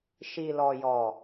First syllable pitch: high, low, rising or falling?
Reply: low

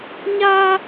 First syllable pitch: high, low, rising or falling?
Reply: high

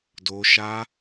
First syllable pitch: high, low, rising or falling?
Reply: high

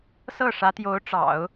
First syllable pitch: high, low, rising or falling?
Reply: falling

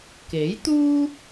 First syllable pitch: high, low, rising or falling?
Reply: rising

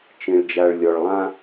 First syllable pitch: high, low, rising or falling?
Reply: low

